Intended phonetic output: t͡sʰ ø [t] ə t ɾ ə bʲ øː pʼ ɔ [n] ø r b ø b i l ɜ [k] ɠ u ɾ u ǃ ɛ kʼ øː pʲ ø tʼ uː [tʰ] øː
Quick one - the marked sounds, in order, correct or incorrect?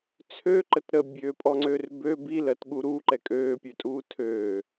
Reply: incorrect: ǃ, incorrect: ŋ͡ǀ, incorrect: t, correct

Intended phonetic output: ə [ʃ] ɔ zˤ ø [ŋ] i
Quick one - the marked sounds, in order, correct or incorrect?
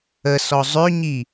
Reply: incorrect: s, incorrect: ɲ

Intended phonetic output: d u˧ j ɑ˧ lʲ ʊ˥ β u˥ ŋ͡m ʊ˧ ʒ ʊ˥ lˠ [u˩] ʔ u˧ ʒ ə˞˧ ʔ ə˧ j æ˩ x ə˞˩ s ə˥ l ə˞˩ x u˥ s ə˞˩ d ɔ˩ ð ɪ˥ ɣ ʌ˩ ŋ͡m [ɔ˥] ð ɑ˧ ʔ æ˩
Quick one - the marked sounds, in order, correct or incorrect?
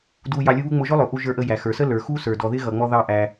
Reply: incorrect: ʊ˩, incorrect: ɔ˧

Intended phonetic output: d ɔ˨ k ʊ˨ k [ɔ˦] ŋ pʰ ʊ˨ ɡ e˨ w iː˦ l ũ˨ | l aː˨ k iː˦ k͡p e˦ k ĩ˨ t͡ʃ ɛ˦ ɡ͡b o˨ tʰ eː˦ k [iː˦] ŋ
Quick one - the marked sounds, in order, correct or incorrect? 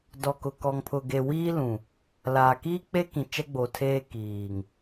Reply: incorrect: ɔ˨, incorrect: iː˨

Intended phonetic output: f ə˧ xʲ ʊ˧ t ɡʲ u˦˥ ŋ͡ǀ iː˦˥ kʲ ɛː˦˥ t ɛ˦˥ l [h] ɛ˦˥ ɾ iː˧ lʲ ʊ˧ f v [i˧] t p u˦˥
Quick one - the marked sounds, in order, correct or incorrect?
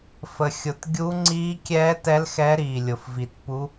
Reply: incorrect: x, correct

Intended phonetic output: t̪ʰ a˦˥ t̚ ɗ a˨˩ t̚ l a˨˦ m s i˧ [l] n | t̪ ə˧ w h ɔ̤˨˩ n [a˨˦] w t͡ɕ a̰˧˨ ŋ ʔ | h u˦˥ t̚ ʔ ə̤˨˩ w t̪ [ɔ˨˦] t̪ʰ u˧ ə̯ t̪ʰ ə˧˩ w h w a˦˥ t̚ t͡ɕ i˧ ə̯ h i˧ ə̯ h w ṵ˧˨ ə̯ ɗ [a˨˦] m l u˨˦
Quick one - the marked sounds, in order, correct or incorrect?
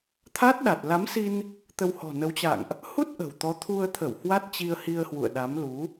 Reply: incorrect: none, incorrect: ə˨˦, correct, correct

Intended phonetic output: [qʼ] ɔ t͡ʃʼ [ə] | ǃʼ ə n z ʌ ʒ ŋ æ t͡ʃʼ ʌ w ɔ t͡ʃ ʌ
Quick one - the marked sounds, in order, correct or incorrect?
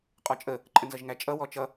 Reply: correct, correct

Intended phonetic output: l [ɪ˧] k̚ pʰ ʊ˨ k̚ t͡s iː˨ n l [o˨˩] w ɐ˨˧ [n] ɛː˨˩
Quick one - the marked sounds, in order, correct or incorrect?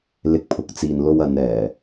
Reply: incorrect: ɪ˨˥, incorrect: o˧, correct

